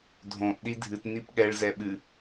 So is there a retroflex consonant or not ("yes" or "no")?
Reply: yes